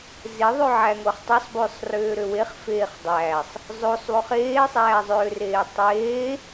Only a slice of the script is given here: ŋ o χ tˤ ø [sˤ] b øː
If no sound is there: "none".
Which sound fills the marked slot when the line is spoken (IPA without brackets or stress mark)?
sˤ